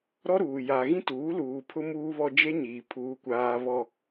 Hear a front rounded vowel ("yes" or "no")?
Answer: no